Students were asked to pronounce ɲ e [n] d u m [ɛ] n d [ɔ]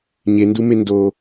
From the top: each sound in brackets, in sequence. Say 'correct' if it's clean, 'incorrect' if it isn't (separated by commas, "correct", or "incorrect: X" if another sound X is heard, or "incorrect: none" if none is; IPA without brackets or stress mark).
correct, incorrect: e, incorrect: o